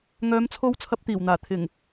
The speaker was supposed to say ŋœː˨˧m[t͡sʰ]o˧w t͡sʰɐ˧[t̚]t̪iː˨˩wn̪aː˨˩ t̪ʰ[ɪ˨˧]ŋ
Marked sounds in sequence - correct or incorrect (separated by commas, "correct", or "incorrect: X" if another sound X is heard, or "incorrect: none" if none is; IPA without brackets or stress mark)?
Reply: correct, incorrect: p̚, incorrect: ɪ˨˩